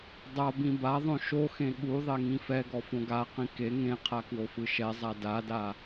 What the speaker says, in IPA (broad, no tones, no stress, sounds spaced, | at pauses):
dˤ a b ĩ b a ðˤ õ ʃ o x ẽ ɠ u ðˤ e ŋ ĩ f ɛ ɡ ɔ f õ ɡ a q ĩ k e ŋ ẽ qʰ a k w o f ɯ ʃ ɛ zˤ a d a d a